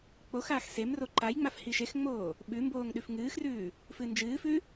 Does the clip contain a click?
yes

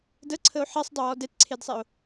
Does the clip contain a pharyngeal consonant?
yes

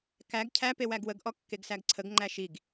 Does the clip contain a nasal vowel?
no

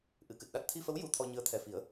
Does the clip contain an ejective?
no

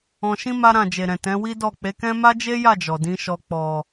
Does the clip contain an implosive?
no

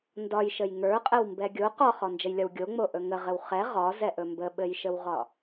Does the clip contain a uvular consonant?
yes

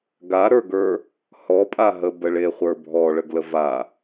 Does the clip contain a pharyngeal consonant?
no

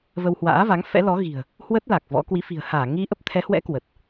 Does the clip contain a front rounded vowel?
no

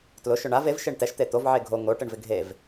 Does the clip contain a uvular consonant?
no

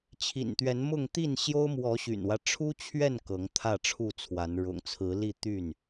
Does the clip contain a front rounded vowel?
yes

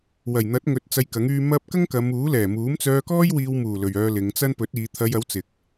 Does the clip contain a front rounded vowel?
yes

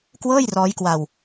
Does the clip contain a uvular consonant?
no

